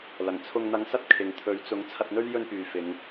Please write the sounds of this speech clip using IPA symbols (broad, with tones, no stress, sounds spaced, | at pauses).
l ɐ˨˩ ŋ t͡sʰ ʊ˧ ŋ n̪ ɐ˧ ŋ s ɐ˥ t̚ kʰ ɪ˧ ŋ t̪ʰ ɵ˨˥ ɥ t͡s ʊ˨˥ ŋ t͡sʰ ɐ˧ t̚ n̪ ɵ˥ ɥ j ɵ˥ n p yː˨ f ɪ˨˧ ŋ